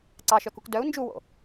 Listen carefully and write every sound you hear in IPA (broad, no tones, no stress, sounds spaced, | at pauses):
ǀ ɑ ʃ œ k u k d œ u̯ n d͡ʒ u w o̰